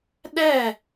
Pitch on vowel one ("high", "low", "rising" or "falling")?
falling